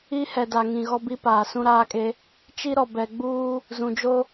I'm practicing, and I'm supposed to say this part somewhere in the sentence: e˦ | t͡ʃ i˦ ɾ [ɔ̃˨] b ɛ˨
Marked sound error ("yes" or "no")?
yes